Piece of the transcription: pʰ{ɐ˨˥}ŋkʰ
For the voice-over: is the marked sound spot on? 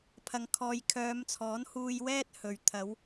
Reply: no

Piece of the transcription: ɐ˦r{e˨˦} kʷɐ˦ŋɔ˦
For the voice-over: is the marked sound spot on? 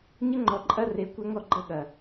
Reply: yes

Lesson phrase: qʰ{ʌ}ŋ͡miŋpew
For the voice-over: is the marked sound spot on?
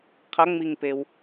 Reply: yes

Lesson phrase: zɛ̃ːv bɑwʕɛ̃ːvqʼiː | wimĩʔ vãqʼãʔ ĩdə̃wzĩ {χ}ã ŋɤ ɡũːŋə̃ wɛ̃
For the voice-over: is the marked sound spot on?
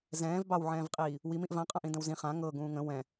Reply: yes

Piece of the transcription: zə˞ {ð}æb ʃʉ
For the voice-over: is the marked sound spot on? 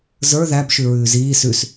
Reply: yes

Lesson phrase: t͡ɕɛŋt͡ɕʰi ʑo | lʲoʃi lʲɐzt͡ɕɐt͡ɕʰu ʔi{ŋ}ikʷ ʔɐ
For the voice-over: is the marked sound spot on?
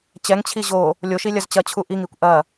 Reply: yes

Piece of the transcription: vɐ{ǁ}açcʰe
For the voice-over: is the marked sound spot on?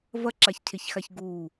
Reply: yes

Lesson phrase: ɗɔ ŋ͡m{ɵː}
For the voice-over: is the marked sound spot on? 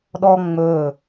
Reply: yes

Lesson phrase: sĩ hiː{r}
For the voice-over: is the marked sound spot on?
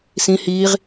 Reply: no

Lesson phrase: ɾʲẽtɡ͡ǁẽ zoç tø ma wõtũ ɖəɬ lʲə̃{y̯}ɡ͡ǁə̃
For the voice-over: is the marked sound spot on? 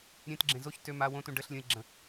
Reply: no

